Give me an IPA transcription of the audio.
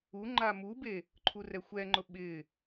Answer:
u ŋ͡ǃ a m u b e | ǃʰ u r ɛ xʷ ɛ ŋ͡ǃ ʊ ɓ ɪ

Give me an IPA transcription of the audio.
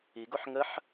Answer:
i ɡ o ħ ŋ ə ħ

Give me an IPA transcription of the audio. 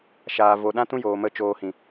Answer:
ʃ aː˨ v o˨ ɗ ã˦ t ũ˦ j oː˨ m ə˦˨ t͡ʃ oː˧ h ĩ˨

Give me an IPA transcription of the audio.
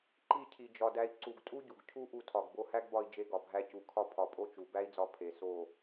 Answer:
ǃ i˦˨ cʰ i˨ d͡ʒ ɒ˨ d æ˧ i̯ ǀ u˨ ɡ tʼ u˦ ɟ u˨ ɡ cʰ u˦ ʔ u˧ tʰ ɒ˨ ɡ b o˧ h æ˦ ɡ b ɒ˧ i̯ d͡ʒ e˧ ɡ ɒ˨ bʱ æ˧ c u˨ kʰ ɒ˦ pʰ ɒ˨ pʼ o˦ t͡ʃ u˨ b æ˦ i̯ d͡z ɒ˧ pʰ e˨ s o˦˨

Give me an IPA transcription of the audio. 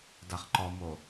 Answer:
d a χ ǃ ɔ m o

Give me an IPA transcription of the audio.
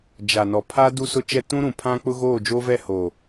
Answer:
d͡ʒ a˨ n ɔ˨ pʰ a˦ d u˦ s ʊ˦ t͡ʃ ɛ˦ t ũ˦ ɾ ũ˨ pʰ ã˦ k͡p ʊ˦ ɣ oː˦˨ d͡ʒ oː˦ v ɛ˦˨ h oː˨

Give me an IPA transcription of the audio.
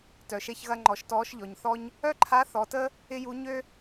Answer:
t œ˩ ʃ e˧ ç ɣ ɐ˧ ŋ͡ǃ ɔ˩˧ ʃ t ɔː˧˥ ʃ ʎ ɔ˩ ɲ θ ɔ˥ ɲ | œ˥ ǃʰ a˧˥ θ ɔ˩˧ t ə˥ | ɪ˥ j u˧˥ ɲ ø˥

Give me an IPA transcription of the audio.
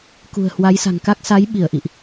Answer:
k ṳ˨˩ ə̯ h w a˨˦ j s a̤˨˩ ŋ k a˦˥ k̚ s a˨˦ j ɓ i˧˩ ə̯ ʔ ḭ˧˨ ʔ

